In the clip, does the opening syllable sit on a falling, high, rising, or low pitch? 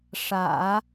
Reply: low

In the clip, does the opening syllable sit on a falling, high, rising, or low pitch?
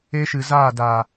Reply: high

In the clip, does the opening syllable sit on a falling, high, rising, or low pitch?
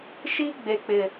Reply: high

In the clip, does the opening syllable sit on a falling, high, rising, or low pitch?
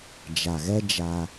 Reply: low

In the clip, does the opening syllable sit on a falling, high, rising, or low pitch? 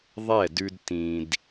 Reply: falling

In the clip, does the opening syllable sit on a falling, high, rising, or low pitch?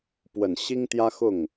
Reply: low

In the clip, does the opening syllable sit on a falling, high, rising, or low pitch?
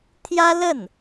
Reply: high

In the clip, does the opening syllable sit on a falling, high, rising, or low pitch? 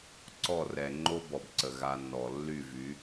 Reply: falling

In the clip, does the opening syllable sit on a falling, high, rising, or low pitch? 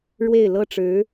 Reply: falling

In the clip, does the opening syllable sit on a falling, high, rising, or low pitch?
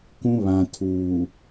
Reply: high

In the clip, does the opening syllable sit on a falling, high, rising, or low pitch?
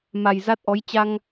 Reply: low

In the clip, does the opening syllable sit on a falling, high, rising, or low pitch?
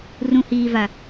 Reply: low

